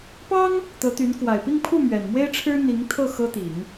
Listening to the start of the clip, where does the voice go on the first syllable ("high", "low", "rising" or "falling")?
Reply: high